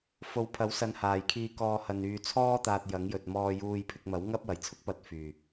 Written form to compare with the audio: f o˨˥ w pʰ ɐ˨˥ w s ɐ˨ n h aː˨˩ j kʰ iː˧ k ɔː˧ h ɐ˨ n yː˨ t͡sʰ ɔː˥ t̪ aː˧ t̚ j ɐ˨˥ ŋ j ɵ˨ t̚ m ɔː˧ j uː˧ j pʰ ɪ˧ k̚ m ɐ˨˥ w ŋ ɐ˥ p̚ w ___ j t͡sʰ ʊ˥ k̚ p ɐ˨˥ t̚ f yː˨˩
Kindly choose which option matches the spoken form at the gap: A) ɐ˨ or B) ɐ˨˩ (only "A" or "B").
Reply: B